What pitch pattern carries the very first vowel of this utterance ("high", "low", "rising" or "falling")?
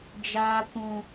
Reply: high